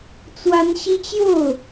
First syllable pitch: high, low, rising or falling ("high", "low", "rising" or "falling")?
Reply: high